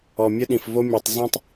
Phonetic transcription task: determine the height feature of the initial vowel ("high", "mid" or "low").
mid